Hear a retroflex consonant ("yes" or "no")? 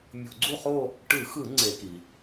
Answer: yes